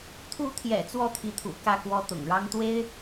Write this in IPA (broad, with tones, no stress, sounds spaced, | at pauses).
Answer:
t̪ʰ u˧˥ t̪ʰ j ɛ̰˨˩ t͡s w ɔ˥˩ t̪ʰ i˧˥ t̪ʰ ṵ˨˩ k ä˥˩ k w ɔ˥ t̪ ʊ̰˨˩ ŋ ɻ ɑ˥ ŋ t̪ w e˥ ɪ̯